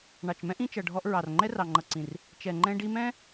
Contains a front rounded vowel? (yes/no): no